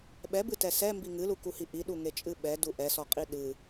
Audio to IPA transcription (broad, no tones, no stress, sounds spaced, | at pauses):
ɓ ɛ b ɨ t ɛ s ɛ m b i ŋ ɨ l u k u h i ʔ i ɗ u ŋ e t͡ʃʼ ɨ ɓ ɛ d u ʔ ɛ s ɔ qʼ i ɗ ɨ